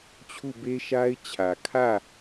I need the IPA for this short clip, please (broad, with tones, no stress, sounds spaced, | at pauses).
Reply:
t͡ɕʰ u˦˨ b e˦ ʃ a˦ ɪ̯ t͡ɕʰ ä˨ kʰ ä˦˨